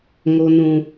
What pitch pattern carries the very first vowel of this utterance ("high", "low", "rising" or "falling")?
low